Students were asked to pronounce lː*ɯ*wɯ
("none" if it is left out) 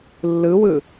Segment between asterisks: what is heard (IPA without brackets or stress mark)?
ɯ